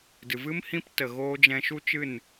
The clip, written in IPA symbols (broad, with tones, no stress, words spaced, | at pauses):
dɨ˨vɨ˦m hĩ˦p tə˨ɣoː˧ d͡ʒɛ̃˧ʃu˦t͡ʃɨ˦˨n